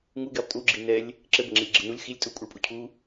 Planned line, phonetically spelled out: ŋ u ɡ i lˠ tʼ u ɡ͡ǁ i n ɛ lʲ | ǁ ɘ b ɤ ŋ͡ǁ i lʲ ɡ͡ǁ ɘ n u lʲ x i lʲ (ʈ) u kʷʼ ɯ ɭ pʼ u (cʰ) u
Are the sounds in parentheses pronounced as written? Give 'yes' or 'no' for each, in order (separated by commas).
no, yes